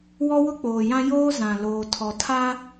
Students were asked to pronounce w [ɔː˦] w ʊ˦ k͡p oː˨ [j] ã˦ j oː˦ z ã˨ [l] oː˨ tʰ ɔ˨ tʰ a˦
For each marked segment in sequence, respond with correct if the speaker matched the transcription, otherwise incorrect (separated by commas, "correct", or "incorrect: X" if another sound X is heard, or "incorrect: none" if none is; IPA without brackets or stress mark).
incorrect: ɔ˦, correct, correct